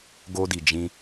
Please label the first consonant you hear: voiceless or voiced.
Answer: voiced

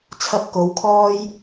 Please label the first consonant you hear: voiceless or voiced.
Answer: voiceless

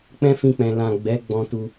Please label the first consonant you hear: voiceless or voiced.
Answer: voiceless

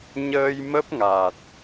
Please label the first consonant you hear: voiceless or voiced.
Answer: voiced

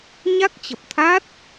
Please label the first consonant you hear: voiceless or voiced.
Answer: voiced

